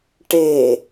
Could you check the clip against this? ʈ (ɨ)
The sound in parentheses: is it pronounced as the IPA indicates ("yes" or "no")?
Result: no